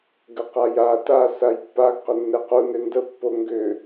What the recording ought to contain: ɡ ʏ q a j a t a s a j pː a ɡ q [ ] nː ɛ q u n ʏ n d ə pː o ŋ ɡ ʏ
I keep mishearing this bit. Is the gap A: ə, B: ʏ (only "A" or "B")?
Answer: B